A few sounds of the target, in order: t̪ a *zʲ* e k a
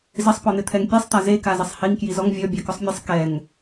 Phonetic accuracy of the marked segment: incorrect: z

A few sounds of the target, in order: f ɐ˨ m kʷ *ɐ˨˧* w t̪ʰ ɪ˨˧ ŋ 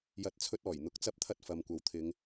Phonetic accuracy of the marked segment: incorrect: ɐ˨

